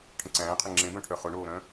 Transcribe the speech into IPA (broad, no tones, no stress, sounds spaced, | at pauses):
ʈʰ ə̃ ǀ æ̃ː qʰ ə ŋ͡ǁ ẽ b œ̃ ʈʰ œ χ ʊ ɳ oː ɾ œ̃